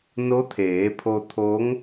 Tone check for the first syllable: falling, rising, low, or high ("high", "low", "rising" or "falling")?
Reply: rising